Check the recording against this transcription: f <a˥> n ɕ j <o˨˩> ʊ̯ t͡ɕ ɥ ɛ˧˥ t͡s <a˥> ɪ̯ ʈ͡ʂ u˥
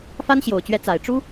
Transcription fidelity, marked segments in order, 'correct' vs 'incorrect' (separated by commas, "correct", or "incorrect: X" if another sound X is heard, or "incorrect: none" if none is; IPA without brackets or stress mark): correct, correct, incorrect: a˨˩